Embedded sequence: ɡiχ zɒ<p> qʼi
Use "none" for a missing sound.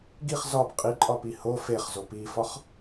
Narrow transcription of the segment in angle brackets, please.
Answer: p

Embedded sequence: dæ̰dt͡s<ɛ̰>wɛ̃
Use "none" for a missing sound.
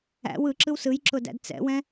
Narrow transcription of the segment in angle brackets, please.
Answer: ɛ̰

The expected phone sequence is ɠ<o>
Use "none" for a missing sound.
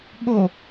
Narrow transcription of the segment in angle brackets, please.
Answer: o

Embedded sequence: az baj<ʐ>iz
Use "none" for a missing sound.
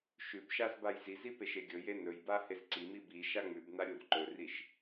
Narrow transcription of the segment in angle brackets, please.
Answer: z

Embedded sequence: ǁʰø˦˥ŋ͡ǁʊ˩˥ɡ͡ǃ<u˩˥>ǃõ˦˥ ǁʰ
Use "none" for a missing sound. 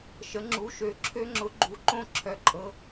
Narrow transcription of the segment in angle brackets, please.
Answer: u˩˥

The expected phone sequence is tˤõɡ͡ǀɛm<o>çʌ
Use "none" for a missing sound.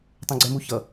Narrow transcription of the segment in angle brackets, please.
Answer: u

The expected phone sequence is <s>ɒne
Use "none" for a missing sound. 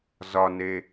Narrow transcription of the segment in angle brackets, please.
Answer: z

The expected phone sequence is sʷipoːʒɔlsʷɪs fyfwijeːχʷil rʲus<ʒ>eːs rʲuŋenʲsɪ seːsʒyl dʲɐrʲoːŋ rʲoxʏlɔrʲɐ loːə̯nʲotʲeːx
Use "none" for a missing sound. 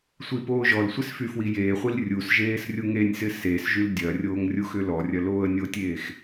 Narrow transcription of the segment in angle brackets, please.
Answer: ʒ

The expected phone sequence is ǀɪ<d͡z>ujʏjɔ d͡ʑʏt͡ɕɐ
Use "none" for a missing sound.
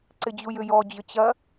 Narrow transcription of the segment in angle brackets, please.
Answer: d͡ʑ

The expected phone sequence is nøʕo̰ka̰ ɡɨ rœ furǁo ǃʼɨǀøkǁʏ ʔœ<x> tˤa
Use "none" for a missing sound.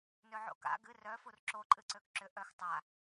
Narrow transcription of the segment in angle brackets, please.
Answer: x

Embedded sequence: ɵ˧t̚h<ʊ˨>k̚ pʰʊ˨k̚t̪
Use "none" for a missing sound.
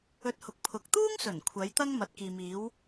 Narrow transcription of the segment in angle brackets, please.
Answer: ʊ˨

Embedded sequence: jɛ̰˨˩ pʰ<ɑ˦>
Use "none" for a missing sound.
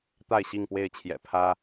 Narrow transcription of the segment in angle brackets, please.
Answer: ä˦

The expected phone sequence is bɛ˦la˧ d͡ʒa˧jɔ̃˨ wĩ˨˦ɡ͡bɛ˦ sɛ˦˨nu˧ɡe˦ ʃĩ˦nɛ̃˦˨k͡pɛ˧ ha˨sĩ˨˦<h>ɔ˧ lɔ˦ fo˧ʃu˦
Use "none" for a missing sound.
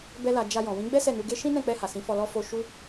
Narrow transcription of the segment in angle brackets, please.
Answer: f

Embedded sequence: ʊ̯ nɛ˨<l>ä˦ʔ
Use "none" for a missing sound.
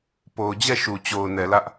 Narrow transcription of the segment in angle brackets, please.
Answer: l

